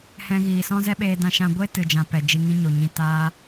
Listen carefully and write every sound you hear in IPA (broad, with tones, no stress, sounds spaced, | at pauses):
h ɛ̃˧ ɣ iː˨ s ɔ̃˦ z ɛ˦ ɓ eː˧ d ã˦ ʃ ã˦ ɡʷ e˦ t ɨ˨ d͡ʒ ã˨ p ɛ˨ d͡ʒ i˧ ŋ ĩ˦ ɲ o˨ ɲ ĩ˧ t aː˧